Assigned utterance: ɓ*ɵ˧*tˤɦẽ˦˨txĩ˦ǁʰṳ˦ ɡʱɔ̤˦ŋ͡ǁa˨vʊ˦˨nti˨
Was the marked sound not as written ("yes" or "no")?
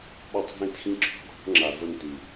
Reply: yes